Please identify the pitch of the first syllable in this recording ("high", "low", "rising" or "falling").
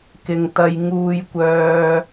low